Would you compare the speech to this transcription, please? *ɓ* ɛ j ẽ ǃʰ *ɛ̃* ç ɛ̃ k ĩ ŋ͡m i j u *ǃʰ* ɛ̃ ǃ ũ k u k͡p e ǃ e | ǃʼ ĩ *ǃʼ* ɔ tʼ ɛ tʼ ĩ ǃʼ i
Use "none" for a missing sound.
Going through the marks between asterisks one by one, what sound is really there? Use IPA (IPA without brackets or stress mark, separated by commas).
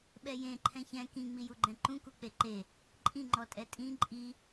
ɓ, ɛ̃, ɡ͡ǃ, ŋ͡ǃ